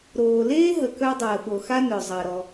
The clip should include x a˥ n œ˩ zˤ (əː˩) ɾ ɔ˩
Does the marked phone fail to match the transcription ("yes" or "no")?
no